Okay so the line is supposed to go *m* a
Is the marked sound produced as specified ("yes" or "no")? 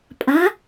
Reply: no